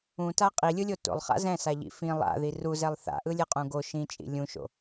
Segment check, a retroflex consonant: absent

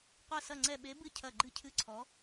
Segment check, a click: present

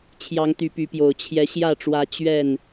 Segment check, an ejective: absent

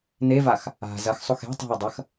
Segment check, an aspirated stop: absent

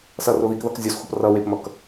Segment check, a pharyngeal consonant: absent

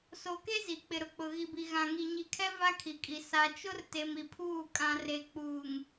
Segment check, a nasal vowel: present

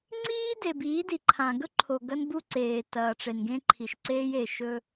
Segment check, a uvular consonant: absent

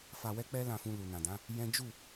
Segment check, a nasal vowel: present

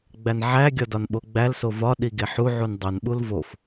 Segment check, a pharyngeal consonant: present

